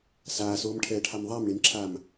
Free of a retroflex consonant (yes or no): no